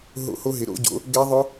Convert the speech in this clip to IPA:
ɦo̰˦˥ho˦˥ɦɪ˨˥ ɾo̰˨˥ɟo̰˨˥ | ɡɛ˦˥ðˤʊ˦˥

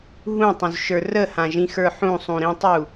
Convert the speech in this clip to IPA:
ɦũtˤũzʃə˞ rəhãʒĩxə˞ ħũsˤũɾĩtˤu

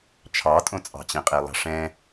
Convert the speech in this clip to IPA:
t͡ʃʰɑtʼõt͡sʼɑ̤t͡ɕẽ qʼelˠɑ̤ʂɛ̃

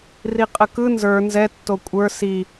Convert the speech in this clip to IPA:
riqʼəkɯ nzə˞ nzɛ tːokʷʼə˞ si

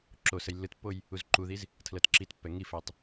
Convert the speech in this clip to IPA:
ǁo səjlːɯtpːoj | uzǃuðiz | tʰlɤtǁitpːɛ ŋifɛtˤ

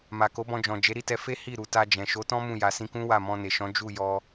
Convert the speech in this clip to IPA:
ma˨ko˨˦bɔ̃˧d͡ʒɔ̃˨ d͡ʒe˨˦ɾi˦˨tɛ˧ fe˦ hi˦˨ɾu˨ta˧d͡ʒɛ̃˨ ʃo˨˦tɔ̃˦ mũ˦˨ja˨ sĩ˧kũ˦ wa˦˨mɔ̃˧ne˨ʃɔ̃˨˦ d͡ʒu˦˨jɔ˧

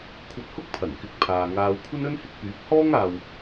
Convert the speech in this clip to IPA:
kʷʰɐ˧t̚hʊ˥k̚pʰɐ˨˩nkɪ˨˥k̚ pʰaː˨ŋaː˧w kʷʰɐ˥nɵ˥nhɪ˨˥k̚pyː˨˥p̚ hɔː˥ŋaː˨w

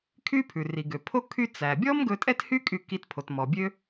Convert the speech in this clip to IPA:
kʰy˥pʰʉ˩ri˩ɡø˩ pʰo˥ kʰy˧t͡sæ˩bʲɔ˥m ɡɵ˧tʼɛ˥thy˥ kʼy˧ki˧t pʰo˩t mɔ˩bʲø˥

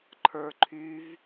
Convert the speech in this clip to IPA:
ǃʰə˞ ǃʰyv

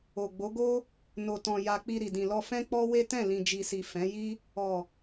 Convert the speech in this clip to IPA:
o˨ɡ͡bo˨˦ɡo˦ | no˨tɔ̃˨ja˨ k͡pi˧ɾi˨dĩ˨ lɔ˧fɛ̃˦k͡pɔ˦ we˦tɛ̃˦˨ lĩ˨d͡ʒi˨si˨ fɛ̃˨˦ji˦ | ɔ˨

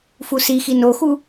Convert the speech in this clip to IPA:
fusixi noxu

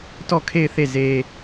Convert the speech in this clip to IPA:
tɔ˦˨kʰe˦˨ɪ̯θe˦˨ ze˦

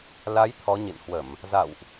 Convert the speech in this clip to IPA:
la˨˦j t̪ʰɔ˨˦ɲḭ˧˨nhwə˧˩˨m | za̰˧˨wʔ

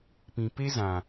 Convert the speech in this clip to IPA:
pĩ˨pe˦zã˨

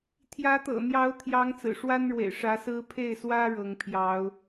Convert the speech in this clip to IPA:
t̪ʰjä˧˥t̪ɤ̰˨˩n̪jɑ˧˥ʊ̯ t̪ʰjɑ˧˥ŋt͡sɹ̩˨˩ʂwa˥nɻwḛ˨˩ɪ̯ ʂä˧˥sɹ̩˥ pʰe˥˩ɪ̯swä˥ ɻɤ˧˥ŋpʰjɑ˧˥ʊ̯

